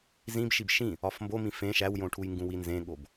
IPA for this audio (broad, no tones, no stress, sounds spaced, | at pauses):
z ĩ b ʃ i b ʃ ĩ | ɒ f m b o m ĩ f ẽ ʃ æ w j õ ʈʰ u j ŋ ɡ ũ w i n z ẽ ɠ o b